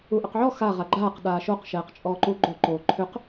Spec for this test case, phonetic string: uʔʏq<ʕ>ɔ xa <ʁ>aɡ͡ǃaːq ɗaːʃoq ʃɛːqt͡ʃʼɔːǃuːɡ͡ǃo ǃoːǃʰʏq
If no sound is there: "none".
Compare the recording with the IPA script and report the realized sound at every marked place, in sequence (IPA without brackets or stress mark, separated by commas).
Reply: ʕ, ʁ